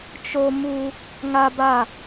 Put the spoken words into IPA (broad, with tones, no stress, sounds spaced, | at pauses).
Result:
t͡ʃ o˦ m u˦ | ŋ a˦ b a˦˨